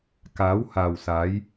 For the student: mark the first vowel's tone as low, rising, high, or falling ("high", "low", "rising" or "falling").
rising